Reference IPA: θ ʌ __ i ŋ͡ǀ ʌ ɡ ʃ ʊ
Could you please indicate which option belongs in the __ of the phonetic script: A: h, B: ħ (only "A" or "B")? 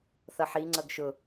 B